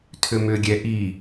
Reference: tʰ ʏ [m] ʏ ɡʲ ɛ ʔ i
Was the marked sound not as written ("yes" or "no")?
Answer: no